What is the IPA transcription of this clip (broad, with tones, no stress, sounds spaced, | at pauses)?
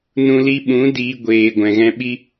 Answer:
n ũ˧ l i˧ ɓ ũ˨˦ d iː˧ ɡʷ eː˨ ɡʷ ɛ̃˨ ɣ ɛ̃˧ ɓ i˦